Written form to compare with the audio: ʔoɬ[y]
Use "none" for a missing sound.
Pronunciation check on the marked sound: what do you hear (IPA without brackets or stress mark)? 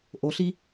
i